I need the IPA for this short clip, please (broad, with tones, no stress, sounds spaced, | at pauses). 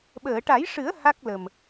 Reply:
ɓ əː˨˩˨ ʈ a˨˩˦ j ʂ ɨ˨˩˦ ə̯ h a˦˥ k̚ l ə˨˩ m